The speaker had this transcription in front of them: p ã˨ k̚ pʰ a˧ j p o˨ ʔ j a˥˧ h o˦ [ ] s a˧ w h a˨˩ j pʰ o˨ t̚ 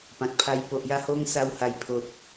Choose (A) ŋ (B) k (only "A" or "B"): A